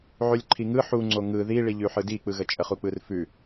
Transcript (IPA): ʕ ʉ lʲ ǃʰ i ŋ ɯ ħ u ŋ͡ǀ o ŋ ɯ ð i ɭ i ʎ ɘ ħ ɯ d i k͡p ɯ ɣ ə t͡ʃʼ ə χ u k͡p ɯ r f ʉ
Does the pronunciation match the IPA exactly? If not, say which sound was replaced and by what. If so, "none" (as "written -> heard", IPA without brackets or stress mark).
ɘ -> ʉ